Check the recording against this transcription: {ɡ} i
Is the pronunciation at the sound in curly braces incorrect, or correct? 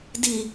incorrect